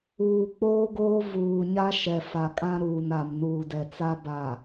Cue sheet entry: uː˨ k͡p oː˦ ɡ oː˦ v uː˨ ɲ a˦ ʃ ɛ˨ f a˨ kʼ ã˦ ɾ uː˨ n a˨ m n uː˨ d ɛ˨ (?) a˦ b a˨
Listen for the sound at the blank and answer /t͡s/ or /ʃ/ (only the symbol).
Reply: t͡s